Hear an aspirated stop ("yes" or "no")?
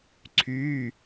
yes